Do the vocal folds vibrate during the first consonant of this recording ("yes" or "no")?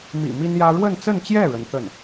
yes